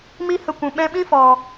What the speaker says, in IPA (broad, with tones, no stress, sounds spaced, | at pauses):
m i˦ h ə˧ kʷ ũ˨ ɓ ɛ̃˧ ɓ ĩ˦ f ɔ˨